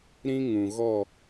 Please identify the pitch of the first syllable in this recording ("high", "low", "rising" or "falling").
high